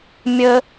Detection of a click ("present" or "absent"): absent